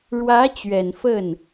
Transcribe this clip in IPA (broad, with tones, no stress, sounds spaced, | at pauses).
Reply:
ɻ w ä˧˥ t͡ɕ ɥ ɛ˨˩ n f ə˥˩ n